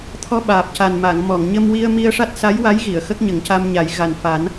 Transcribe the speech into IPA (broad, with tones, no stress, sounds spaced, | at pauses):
t̪ʰ ɔ˧ ɓ aː˨˩ p̚ c a˨˩ n m a˨˩˨ ŋ m ɔ˨˩˨ ŋ ɲ ə˧ m w i˧ ə̯ m i˧ ə̯ ʂ a˦˥ t̚ s a˧˥ j w a˧˥ j ɣ i˨˩˨ ə̯ x ə˦˥ k̚ ɲ ə˨˩˦ ŋ c a˧ m ɲ a˨˩˦ j ɣ a˨˩ n f a˨˩˦ n